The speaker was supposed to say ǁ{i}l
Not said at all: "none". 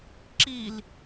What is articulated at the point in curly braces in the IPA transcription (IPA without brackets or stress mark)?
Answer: i